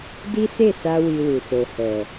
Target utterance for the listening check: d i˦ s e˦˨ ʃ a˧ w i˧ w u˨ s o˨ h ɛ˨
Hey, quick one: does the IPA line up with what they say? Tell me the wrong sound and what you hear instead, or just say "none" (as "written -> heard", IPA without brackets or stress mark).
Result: ʃ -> s